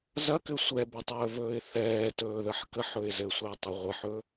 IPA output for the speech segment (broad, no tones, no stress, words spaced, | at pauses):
zɐkɘ sʷɛbətˤɵːvɵːɪ̯ θɛːtɵːðəħ kəħɵɪ̯ zɘsʷiʊ̯tˤʊ ʁʷɘħɵ